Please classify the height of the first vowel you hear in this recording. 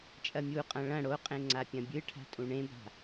low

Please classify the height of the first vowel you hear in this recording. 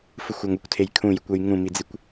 high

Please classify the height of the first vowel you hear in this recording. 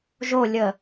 mid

